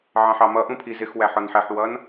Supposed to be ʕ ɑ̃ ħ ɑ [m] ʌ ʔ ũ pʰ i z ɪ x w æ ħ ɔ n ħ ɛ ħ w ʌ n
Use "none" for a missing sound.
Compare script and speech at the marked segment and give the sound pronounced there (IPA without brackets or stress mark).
m